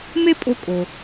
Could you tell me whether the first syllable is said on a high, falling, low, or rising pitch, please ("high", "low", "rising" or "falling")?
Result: high